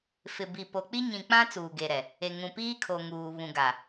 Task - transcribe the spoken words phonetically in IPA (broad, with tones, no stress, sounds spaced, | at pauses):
f ɪ˨ b i˨ p o˨ k͡p i˦ ɲ ĩ˨ k͡p ã˦ t͡s uː˨ ɡ e˨ ɾ ɛ˨ | e˨ ŋ ũ˨ p iː˦ kʰ o˨ ŋ uː˨ β ũ˨ ɡ a˨